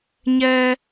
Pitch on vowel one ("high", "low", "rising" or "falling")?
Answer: high